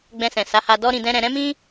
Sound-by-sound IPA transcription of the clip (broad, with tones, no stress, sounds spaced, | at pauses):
ɡ͡b ɛ̃˧ s ɛ̃˨ s a˨˦ h a˧ d ɔ˦ ɾ ĩ˧ d ɛ̃˦ ɾ ɛ̃˧ ɾ ɛ̃˦ m ĩ˦